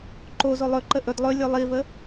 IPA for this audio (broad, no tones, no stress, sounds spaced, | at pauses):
ǃ o z o lˠ ɵ ǃ ə ʔ ɵ d lˠ ɵ lʲ o lˠ i v ə